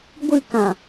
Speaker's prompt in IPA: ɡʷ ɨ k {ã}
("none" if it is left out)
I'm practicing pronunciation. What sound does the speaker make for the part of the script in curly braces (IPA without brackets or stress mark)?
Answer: ã